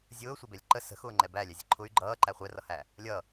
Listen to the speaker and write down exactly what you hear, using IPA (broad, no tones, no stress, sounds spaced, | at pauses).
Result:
zʲ ʊː sʷ ɛ b ɛ lʲ ǃ ə s ə̤ x ʊː ŋ͡ǃ ɛ b æ lʲ æ zʲ ə̤ ǃʰ ʊ y̯ ɡ͡ǃ ʌː ǃ æ χʷ ɛ r ʌ h æ | lʲ ʌ